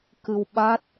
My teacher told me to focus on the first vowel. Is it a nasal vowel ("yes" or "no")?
no